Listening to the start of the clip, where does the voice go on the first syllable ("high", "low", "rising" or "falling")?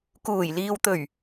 low